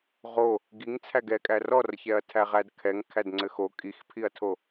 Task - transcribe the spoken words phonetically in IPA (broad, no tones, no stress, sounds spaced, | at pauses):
ʁ o | ɡ i ŋ t͡sʰ æ ɡ ɛ kʼ æ r ɔ r ç ɛ ɐ̯ tʰ æ ʁ æ d kʰ ɛ ŋ kʰ æ d ŋ͡ǀ ɘ x o kʼ i x pʰ i ɐ̯ tʰ o